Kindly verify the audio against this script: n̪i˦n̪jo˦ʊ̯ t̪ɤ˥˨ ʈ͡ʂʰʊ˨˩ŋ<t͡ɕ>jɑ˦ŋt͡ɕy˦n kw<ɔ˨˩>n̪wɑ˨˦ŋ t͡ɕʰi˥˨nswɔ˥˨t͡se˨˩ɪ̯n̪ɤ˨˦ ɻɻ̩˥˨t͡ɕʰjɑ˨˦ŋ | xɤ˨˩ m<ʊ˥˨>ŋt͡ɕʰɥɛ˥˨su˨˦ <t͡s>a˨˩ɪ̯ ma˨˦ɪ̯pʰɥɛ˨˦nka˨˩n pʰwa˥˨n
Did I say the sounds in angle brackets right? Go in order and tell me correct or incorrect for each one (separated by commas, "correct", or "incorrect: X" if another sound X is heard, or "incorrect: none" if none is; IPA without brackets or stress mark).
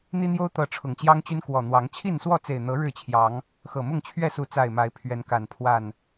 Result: correct, correct, correct, correct